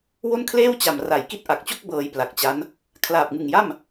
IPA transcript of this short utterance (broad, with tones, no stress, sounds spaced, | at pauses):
w o˥˩ n kʰ l eː˥˩ w t͡ɕ a˨˩ m r a˨˩ j k i˥˩ t̚ ʔ a˨˩ k̚ t͡ɕ o˥˩ k̚ b ɤː˧ j p l a˨˩ k̚ t͡ɕ a˦˥ n | kʰ l aː˨˩ p̚ ŋ ɯ˨˩ ŋ j a˥˩ m